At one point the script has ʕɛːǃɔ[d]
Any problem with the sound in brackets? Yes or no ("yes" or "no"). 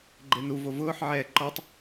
yes